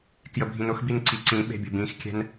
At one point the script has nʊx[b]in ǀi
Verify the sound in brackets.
correct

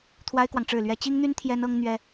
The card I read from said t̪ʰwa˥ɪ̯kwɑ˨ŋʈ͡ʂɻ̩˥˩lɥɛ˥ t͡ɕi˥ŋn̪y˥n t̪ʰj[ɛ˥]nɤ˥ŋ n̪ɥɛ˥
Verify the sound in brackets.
correct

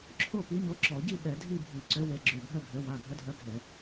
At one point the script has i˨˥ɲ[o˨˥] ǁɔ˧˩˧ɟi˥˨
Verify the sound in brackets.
correct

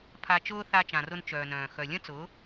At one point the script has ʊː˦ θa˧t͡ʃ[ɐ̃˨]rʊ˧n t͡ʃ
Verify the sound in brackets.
incorrect: ã˨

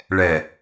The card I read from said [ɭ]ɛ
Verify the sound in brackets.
correct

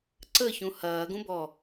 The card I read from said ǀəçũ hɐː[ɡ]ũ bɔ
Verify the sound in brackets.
correct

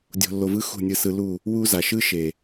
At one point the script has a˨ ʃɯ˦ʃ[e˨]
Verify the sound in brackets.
correct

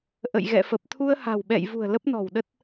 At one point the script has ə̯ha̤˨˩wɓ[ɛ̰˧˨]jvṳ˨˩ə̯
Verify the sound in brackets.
correct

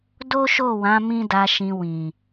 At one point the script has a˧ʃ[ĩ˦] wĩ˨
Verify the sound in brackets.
incorrect: ĩ˧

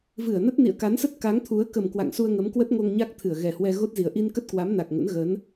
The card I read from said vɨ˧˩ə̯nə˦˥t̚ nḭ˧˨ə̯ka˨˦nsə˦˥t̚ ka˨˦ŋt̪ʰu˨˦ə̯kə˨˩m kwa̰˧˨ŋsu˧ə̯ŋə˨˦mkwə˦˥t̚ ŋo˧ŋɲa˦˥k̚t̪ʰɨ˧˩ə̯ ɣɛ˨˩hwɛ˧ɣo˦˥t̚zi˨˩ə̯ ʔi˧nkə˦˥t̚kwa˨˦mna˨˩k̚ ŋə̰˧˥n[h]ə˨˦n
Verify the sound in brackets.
incorrect: ɣ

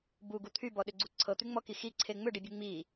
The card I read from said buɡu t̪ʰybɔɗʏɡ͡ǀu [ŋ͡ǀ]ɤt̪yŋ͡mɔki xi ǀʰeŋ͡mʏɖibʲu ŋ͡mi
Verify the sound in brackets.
incorrect: ǀʰ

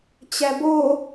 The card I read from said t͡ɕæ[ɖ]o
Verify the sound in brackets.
incorrect: b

